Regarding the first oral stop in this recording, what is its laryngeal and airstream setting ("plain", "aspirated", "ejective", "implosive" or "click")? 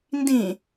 plain